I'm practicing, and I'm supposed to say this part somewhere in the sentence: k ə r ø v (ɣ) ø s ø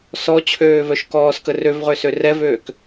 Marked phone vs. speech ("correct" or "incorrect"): incorrect